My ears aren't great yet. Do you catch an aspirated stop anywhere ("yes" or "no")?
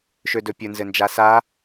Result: no